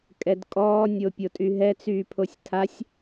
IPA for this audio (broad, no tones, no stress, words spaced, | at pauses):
kʼɛdkʼɔː nʲopʲotʼyɦɛ t͡syːpʰosʲtʰasʲ